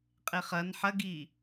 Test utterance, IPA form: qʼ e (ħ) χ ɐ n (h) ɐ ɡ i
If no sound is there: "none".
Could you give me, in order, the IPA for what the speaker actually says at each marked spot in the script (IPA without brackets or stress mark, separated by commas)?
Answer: none, ħ